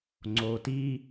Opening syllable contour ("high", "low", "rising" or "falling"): low